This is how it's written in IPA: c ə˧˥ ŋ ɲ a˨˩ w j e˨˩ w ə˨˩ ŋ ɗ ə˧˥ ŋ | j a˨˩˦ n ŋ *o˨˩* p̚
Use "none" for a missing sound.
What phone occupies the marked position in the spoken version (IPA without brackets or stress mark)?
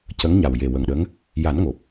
o˨˩